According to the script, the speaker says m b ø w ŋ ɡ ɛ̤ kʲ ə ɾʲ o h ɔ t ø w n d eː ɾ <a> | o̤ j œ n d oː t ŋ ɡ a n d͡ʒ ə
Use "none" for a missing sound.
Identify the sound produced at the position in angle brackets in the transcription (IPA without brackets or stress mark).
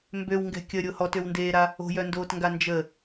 a